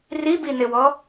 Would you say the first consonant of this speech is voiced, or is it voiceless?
voiced